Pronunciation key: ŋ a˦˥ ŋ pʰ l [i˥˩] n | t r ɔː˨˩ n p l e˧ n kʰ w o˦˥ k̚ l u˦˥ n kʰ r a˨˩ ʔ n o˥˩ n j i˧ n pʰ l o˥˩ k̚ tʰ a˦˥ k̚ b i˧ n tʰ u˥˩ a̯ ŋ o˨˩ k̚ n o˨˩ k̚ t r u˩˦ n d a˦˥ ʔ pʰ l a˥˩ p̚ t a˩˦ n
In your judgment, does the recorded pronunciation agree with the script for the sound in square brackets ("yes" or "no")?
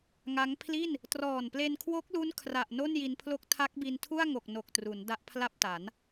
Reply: yes